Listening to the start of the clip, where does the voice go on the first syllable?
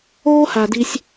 high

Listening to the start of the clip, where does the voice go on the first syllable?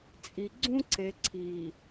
low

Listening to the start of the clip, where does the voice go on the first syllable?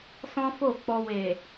high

